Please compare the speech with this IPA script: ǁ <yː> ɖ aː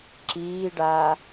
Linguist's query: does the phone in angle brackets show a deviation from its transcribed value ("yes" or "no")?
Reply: yes